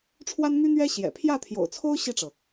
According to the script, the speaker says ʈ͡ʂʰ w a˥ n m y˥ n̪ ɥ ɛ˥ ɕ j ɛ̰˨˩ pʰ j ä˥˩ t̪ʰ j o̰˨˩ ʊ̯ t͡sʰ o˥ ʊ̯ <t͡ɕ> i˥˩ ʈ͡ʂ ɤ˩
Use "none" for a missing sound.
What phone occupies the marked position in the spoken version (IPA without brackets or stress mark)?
ɕ